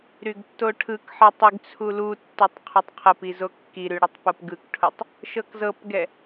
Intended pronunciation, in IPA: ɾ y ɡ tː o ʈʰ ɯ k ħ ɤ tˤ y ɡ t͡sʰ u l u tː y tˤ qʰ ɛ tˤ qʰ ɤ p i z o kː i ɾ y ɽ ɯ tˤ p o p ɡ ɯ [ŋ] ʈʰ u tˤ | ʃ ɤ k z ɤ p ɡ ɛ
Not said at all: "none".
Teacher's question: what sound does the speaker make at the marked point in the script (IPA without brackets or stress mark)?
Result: k